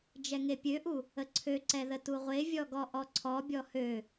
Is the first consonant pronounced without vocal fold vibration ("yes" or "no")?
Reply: no